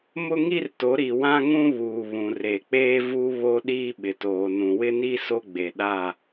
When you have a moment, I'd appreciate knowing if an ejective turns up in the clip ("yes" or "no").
no